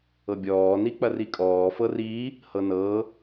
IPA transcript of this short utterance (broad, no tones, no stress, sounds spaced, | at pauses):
ɤ bʲ ɔː n i k͡p ɐ r i kʼ ɔː f ɤ r iː | h ɤ n ɤː